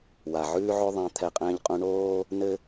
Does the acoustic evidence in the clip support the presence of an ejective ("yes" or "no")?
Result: yes